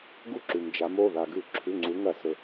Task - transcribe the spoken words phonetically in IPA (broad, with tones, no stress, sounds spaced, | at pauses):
ɡ u˦ ǁ ʉ˩ m d͡ʒ a˩˧ m o˩˧˩ ð a˩ ɡ ʉ˧˩˧ ǁʰ ʉ˩˧˩ ŋ͡ǀ u˩˧ ŋ ɐ˧˩˧ s ɵ˩